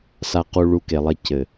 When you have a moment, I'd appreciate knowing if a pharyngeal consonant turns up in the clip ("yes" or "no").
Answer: no